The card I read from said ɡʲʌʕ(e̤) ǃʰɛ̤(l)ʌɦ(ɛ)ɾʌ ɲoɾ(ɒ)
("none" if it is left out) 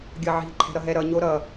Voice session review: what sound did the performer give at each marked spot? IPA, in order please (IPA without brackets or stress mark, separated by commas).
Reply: i̤, ɾ, ɛ, ʌ